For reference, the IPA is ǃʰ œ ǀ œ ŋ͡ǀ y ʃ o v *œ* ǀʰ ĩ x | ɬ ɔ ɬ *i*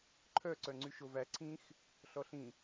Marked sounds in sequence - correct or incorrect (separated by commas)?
incorrect, incorrect